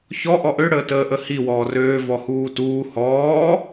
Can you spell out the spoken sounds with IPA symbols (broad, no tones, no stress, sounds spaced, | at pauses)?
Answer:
ç ɔ ʔ ɔ ʔ ø ɽ əː t əː ʔ ə h i w ɔː r øː v ɔ h uː t uː h ɔː